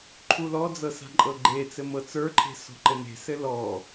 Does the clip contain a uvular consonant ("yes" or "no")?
no